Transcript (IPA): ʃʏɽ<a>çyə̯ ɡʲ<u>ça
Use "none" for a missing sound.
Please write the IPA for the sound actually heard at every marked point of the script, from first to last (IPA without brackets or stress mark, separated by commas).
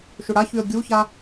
a, u